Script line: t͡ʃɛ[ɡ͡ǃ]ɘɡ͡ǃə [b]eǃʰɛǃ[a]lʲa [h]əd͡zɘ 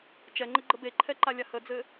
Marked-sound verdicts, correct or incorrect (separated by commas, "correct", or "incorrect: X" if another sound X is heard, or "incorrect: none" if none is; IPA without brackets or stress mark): incorrect: ŋ͡ǃ, correct, correct, correct